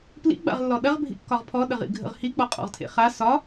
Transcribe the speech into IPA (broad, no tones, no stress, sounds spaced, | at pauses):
p l ḭ ɡ͡b a̰ ʁ lː ɔ ɗ ɐ ʁ bʱ ḭ kː ɒ ʁ pʰ ɔ ɗ ə ʁ ḭ ɡʱ ə̰ ʁ h i k͡p ɔ qʼ ɔ̰ ʁ tʰ ḛ χ a s ɒ